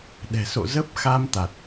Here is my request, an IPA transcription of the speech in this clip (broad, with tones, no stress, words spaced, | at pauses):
ɗɛ̤˨˩so̰˧˨ zə˦˥p̚xa˧mt̪a˨˩t̚